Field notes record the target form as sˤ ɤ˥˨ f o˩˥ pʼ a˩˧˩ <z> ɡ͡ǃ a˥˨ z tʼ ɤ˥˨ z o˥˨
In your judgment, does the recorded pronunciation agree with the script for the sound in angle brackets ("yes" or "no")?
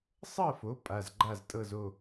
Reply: yes